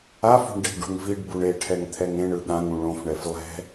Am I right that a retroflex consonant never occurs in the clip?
no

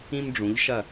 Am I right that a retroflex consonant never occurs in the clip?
no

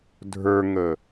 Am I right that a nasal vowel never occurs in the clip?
yes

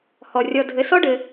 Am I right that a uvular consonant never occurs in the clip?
yes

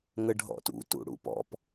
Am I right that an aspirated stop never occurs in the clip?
yes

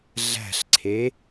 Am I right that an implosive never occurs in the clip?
yes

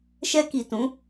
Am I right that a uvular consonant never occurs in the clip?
yes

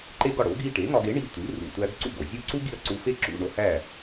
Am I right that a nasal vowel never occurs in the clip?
yes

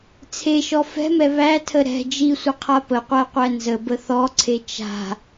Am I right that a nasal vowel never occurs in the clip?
yes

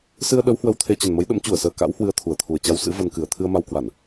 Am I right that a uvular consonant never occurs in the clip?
yes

